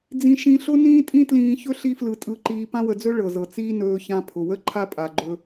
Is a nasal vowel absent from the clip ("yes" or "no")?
no